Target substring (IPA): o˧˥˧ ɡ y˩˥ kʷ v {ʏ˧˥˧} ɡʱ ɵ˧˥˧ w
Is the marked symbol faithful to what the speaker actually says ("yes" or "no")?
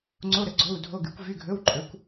no